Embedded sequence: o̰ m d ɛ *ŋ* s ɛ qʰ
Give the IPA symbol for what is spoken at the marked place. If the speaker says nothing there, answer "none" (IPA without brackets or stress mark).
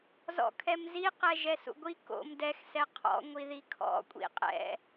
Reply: x